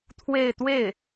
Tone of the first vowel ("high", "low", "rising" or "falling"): falling